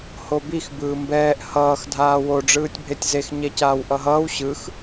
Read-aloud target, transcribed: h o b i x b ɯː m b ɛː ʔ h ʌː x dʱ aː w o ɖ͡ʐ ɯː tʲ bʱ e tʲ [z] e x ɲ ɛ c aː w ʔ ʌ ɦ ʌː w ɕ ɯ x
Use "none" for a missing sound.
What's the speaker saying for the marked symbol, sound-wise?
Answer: z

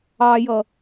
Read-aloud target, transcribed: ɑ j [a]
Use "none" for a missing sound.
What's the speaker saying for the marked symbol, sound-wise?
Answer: ʌ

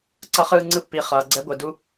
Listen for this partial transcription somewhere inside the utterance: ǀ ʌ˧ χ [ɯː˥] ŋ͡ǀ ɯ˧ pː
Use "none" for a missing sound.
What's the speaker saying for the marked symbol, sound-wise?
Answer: ɯː˧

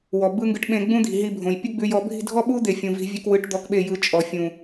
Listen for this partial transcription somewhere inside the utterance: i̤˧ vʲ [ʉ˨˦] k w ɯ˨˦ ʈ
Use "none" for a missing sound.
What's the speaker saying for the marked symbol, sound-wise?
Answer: ʉ˧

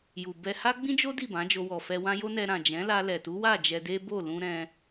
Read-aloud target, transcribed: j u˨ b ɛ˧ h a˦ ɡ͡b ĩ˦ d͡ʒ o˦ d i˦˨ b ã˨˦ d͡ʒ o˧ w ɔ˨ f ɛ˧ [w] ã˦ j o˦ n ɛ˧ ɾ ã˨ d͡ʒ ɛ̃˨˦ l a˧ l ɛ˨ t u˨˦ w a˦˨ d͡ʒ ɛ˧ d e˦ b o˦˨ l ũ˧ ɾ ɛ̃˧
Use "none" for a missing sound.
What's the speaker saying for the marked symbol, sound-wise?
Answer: w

